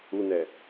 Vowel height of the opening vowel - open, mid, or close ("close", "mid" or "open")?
close